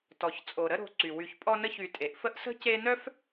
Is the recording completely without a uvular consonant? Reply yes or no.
yes